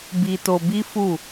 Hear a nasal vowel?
no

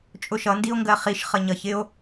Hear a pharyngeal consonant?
no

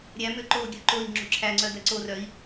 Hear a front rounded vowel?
yes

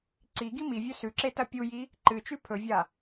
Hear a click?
yes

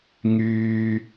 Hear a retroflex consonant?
no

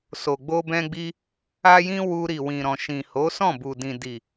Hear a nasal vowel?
yes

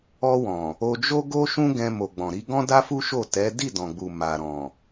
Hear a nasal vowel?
yes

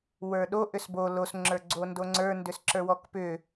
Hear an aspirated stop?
no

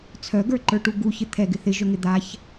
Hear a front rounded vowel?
yes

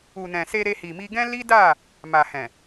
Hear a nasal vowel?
yes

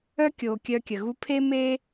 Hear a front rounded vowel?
yes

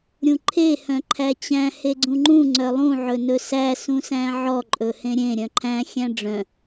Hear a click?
yes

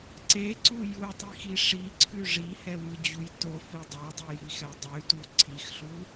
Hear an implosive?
no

